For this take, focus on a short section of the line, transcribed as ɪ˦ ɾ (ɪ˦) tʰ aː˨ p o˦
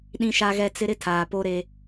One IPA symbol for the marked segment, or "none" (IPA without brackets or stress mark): ɪ˦